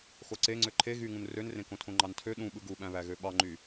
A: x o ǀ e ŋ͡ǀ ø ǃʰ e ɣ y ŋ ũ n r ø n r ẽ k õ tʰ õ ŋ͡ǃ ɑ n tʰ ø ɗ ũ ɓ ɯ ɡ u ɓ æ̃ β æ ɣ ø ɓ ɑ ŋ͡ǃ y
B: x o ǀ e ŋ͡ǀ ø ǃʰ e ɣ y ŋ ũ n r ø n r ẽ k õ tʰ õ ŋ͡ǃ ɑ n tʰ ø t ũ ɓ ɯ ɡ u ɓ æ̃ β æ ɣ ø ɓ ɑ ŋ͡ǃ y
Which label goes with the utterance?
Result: A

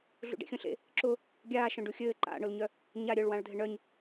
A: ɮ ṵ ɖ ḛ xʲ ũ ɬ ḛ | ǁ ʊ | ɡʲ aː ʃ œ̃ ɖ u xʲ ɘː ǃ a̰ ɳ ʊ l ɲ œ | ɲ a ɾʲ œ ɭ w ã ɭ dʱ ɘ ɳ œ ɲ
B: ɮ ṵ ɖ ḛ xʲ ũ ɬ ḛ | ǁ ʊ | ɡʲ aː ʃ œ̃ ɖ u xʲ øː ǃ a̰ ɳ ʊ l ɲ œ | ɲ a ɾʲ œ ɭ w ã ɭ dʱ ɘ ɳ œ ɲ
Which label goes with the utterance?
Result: A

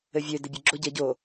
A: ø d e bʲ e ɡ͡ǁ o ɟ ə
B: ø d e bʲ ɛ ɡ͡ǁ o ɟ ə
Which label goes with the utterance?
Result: A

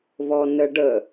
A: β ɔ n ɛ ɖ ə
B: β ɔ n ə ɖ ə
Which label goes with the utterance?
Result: B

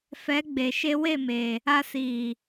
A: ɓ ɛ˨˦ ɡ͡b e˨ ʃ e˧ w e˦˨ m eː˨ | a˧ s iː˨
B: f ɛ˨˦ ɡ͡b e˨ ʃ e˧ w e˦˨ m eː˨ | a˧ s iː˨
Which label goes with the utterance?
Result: B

